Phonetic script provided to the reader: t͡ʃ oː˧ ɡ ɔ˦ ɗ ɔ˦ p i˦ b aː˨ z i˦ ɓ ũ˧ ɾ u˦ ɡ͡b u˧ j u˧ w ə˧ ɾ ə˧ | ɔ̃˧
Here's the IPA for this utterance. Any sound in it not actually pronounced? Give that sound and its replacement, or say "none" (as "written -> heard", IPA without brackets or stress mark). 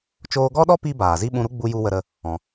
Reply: none